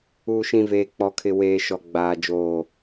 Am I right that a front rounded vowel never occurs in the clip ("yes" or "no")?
yes